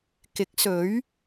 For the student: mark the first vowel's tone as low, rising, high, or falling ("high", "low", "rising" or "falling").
rising